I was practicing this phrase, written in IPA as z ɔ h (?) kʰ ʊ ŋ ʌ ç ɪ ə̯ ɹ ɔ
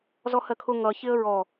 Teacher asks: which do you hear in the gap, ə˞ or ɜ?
ɜ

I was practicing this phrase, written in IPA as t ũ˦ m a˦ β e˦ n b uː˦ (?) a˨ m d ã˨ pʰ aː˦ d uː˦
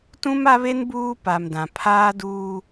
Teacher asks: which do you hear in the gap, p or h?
p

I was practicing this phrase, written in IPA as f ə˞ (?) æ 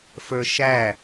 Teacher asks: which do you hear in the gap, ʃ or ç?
ʃ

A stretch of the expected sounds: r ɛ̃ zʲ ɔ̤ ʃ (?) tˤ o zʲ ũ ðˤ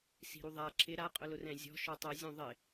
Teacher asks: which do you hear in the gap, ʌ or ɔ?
ɔ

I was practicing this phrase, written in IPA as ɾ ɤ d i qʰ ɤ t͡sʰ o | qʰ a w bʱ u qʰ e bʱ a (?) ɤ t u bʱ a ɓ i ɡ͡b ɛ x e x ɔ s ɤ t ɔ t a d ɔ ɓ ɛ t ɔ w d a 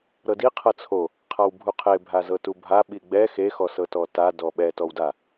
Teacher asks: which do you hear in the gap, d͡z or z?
z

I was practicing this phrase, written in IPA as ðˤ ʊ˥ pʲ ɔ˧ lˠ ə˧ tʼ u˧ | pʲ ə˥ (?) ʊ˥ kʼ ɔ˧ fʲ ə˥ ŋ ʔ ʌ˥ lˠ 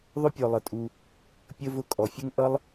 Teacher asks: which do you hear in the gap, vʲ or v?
v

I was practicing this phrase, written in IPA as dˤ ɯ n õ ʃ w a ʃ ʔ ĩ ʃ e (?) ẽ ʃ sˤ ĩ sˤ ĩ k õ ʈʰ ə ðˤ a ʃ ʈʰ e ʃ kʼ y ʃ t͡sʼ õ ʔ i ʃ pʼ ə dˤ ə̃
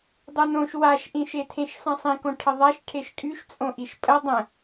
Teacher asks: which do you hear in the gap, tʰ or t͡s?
tʰ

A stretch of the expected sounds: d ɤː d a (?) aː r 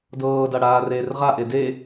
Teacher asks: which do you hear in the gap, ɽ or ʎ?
ɽ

